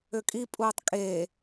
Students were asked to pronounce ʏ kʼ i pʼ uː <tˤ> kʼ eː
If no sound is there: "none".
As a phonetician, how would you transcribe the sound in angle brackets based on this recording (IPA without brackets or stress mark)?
tˤ